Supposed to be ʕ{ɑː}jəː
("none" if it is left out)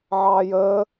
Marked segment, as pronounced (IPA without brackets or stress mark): ɑː